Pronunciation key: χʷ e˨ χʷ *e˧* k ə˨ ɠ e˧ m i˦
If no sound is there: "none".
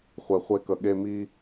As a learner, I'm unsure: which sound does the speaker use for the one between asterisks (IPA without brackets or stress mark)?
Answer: e˧